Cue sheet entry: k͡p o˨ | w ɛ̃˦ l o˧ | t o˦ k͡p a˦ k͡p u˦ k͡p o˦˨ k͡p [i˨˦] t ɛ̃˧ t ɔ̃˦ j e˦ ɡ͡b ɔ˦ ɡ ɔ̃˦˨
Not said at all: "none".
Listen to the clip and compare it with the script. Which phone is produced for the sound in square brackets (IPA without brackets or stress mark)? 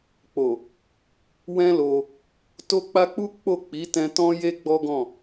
i˨˦